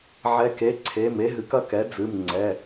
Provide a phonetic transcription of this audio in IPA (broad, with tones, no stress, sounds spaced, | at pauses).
ʕ ɛ˦˥ k e˧˥˧ ǀʰ e˧˥˧ m e˦˥ ɦ ɨ˨˥ k ɐ˦˥ k ɛ˨˥ d͡z ɨ˧˥˧ m ŋ͡ǀ ɛ˧˥˧